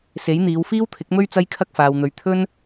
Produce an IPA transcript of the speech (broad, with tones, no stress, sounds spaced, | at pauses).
s e˨˥ j n̪ iː˨˧ w f iː˥ w t̪ʰ ɪ˨˥ k̚ m ɵ˥ ɥ t͡s ɐ˥ j kʰ ɐ˥ k̚ f aː˨ w n̪ ɵ˨˧ ɥ t̪ʰ ɵ˥ n